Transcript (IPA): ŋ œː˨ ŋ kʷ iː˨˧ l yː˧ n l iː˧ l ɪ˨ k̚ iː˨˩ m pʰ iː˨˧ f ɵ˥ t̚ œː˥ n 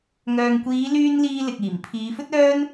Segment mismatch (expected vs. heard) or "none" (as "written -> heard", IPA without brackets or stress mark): none